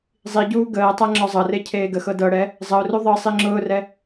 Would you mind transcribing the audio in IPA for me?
zˤiɟuː ɡəːtˤæ ŋ͡ǁɔzˤɤre cʰeːɡəxɤ dɤɽɛ | zˤəʊ̯ru ðˤɤ sˤiŋ͡ǁʊːrɛ

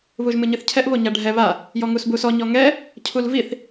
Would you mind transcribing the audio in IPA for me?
βuʒmɨɲɨθcʰɛʔ βoɲaɖʱɛ βa | jɔŋusbusɔ ɲɔŋɛ | cʰulviθ

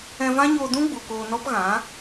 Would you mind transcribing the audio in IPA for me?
ɛ̃˧vã˦ɲoː˧dũ˦ ɡ͡bu˨koː˧nɔ˦pɣã˨˦

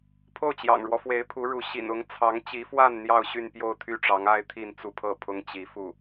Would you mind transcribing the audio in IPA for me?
pʰo˥˩ʊ̯t͡ɕjɑ̰˨˩ŋɻwɔ˦fwe˧˥ɪ̯ pʰu˧˥ɻu˧˥ ɕḭ˨˩nʊ˧˥ŋ t͡sʰɑ˧˥ŋt͡ɕi˧˥fwa˥˧n n̪jɑ˥˧ʊ̯ɕy˥˧npjo˥˧ʊ̯ t̪ʰy˥˩ʈ͡ʂɑ˧˥ŋa˥ɪ̯ t̪ʰi˥˧nt͡su˥˧pʰɤ˥˩ pʰʊ˥ŋt͡ɕi˧˥fu˥˩

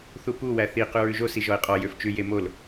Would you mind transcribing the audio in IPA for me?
θupu wæθi qʉɹʉʒo siʒɔɪ̯qʼɔ jøft͡ʃʉ jemol

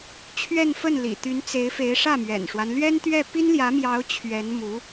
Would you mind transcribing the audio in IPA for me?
t͡ɕʰɥɛ˥˧nfə˥˩nlḭ˨˩ t̪y˧˥nt͡se˧˥ɪ̯ fe˧˥ɪ̯ʂä˥˩mɥɛ̰˨˩nʂwa˦n lɥɛ˥nt̪ɥɛ˥˩ pi˥nljä˧˥mjɑ˧˥ʊ̯ t͡ɕʰɥɛ˧˥nmu˧˥

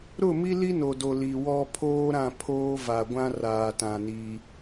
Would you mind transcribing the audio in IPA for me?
ɾʊ˦˨mi˦li˦ no˨do˨ li˨wɔ˦ pʰoː˦ɾã˦˨pʰoː˦ va˨ɡʷã˦ raː˨tã˨ ni˦

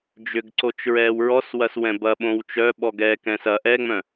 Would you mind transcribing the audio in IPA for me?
d͡ʒʏɡǀot͡ʃ ɹɛːwɹɔs wɐswɛ̃bɐ ɓõwt͡ʃœɓɔɡ ɛ kɛ̃sɐ ʔɛŋ͡mœ̃

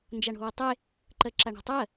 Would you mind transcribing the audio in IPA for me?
nd͡ʒaɳo̤wetˤe | ǃɜǁaɳæ̤tˤɜ

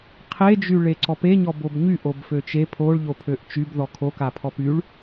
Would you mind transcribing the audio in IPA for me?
qʰed͡ʒy ɭeǀɔpeɲɔ bobɲyʔob føt͡ʃe pʰoɭ ʎopʰøʔt͡ʃyb ðɔkʰokapʰɔp yɭ

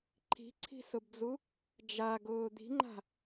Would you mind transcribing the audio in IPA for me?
ǃʰi̤ǀʰi̤sʊbd͡zu | d͡ʒaɡʊː d̪i̤ŋ͡ǃa̤

